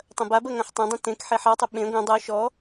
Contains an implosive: yes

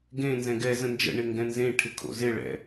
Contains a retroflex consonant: yes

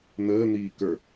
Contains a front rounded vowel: no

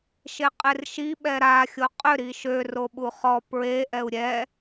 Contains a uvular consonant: yes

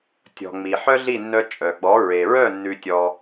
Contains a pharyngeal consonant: yes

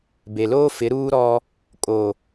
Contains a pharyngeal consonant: no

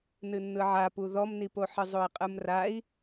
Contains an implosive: no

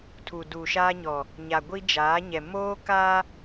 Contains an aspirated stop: yes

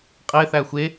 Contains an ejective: yes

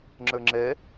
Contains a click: yes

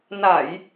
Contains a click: no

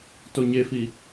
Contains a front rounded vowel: no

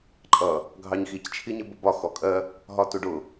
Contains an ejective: yes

